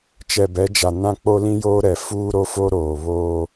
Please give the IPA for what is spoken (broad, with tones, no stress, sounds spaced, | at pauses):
t͡ʃ ɛ˨ b ɛ˨˦ d͡ʒ a˨ n ã˦ k͡p o˦ l ĩ˦ j oː˦ ɾ ɛ˨ f uː˦ ɾ o˦ f o˦ ɾ oː˨ β oː˦